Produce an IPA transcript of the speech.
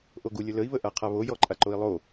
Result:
ʔ o ɡ u lʲ ə l ə i̯ β ə ʔ a qʰ a β o j ɔ ǃʼ a ǃ o i̯ lˠ o

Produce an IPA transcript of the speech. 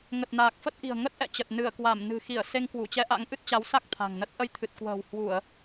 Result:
ŋ ə˨˩ t̚ n aː˨˩ k̚ f ə˦˥ t̚ ʔ i̤˨˩ ə̯ ŋ ə˦˥ t̚ ʔ ɛ̰˧˨ t͡ɕ ə˨˩ t̚ n ɨ˧˩ ə̯ k w a˧˩ m n ɨ̤˨˩ x i˧˩ ə̯ s e˧ ŋ k w u˧˩ t͡ɕ ɛ˧ ʔ a̰˧˥ ŋ ʔ ɨ˦˥ t̚ t͡ɕ a˨˦ w s a˦˥ k̚ t̪ʰ a̤˨˩ ŋ n ə˦˥ t̚ ʔ ə˧ j t̪ʰ ɨ˨˩ t̚ k w ə̤ː˨˩ w h w u˧˩˨ ə̯

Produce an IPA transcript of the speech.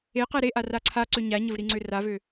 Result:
e q ɛ ɾ e ʔ a r a ǀʰ a ǀ ø ɲ a ɲ ə v ɾ i ŋ͡ǀ ø r a v ø

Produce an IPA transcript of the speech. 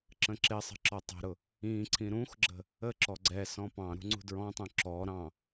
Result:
ǁ ə̃ ǁ ɪ sˤ ə̤ ǁ ɔ tˤ ə̤ ɾ ʊ | ĩ ǀʰ ĩ ɾ ũ x ɡ͡ǁ ə̤ | ə ǁ ɔ ɡ͡ǀ ɛ s ɔ̃ p ɑ̃ ɾ ṳ ŋ͡ǀ ṳ d ɹ ɔ̃ tˤ ũ ǁ ɔ ɾ ɑ̃

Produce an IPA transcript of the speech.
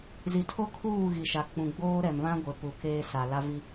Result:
z i˨ tʰ o˦ kʰ uː˦˨ ɣ i˨ ʃ a˨ k͡p ũ˨ ɡ͡b oː˦ ɾ ɛ˨ m β ã˦ ɡʷ ɪ˨ p u˨ k eː˦ s a˨ l a˦ v i˦

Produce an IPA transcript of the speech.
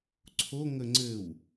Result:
ǀʰ o ŋ ə ŋ͡ǀ ɘ w

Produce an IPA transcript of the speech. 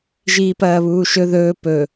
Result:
ʒ iː p ɐː β uː ʃ ɵ ð ɵː p ɵ

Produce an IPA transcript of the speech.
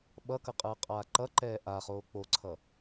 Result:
ɓ ʌ k ʌ qʼ ɯː qʼ aː ǃ ʌ ǃ ɛː ʔ a χ oː k͡p o ǀʰ ʌ

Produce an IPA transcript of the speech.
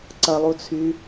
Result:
ǀ ɐ lˠ u t͡sʰ y

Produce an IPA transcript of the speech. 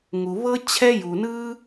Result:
ŋ u˧ β ɤ˥ t͡ɕʰ ɛ˥ j u˧ n ɯ˥

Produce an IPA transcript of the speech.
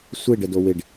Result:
sʷ ɪ ɖ ə d o w ɪ ɖ

